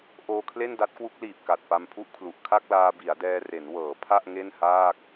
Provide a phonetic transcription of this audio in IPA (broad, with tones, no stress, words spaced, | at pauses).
ʔoː˧kʰle˥˩n da˦˥t̚kwu˦˥k̚liː˨˩p̚ ka˨˩t̚pa˧mpʰu˥˩ʔkʰlu˨˩ʔ kʰa˥˩k̚laː˧ bi˩˦a̯dɛː˧ re˩˦nwɤː˩˦ pʰa˥˩ʔ ŋe˥˩nhaː˥˩k̚